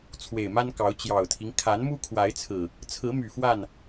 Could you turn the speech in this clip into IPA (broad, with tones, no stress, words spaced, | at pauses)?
t͡sʰwe˨˩ɪ̯ma˦nkɑ˨˦ʊ̯ t͡ɕjɑ˨˩ʊ̯t̪ʰi˦ŋ kʰa˨˦nmu˦kʰwa˨˦ɪ̯t͡sʰɹ̩˨˩ | t͡sʰɹ̩˨˦my˨˩ fwa˥˨n